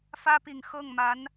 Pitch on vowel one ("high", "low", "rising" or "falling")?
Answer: high